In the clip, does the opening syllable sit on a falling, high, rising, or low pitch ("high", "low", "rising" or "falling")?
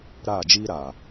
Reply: falling